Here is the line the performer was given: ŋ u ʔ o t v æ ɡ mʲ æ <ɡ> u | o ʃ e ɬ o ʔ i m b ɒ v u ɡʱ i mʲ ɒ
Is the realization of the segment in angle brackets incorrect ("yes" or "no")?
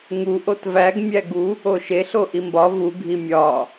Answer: no